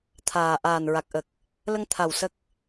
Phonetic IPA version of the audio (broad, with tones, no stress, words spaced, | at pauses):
t̪ʰaː˨˩ ʔaː˨˩nɹa˨˩k̚ ʔə˨˩k̚ | lə˧ŋ t̪ʰa˨˩w sə˦˥k̚